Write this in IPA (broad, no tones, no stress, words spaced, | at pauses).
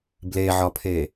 bleʕɒpʰe